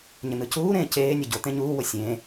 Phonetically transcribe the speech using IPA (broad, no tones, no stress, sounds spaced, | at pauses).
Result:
ɲ ə n ɯ c uː ɾ ẽː c eː nʲ ə ɟ o t̪ ẽ ɲ uː w o sʲ ẽː